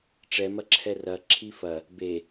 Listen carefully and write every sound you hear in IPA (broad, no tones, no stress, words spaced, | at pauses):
ʈ͡ʂɛmɐǁʰɛ rɐ ǁʰifɐ | be